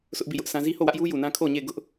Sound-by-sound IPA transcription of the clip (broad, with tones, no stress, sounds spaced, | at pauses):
s ʊ˦ ʔ b i˦˨ j ʊ˦ ʔ s ã˦ z i˦ h o˦˨ w ä˦ ʔ j u˦ j u˨ n ã˦ kʰ o˦˨ ɲ e˦˨ ɪ̯ ɡ ʊ˦ ʔ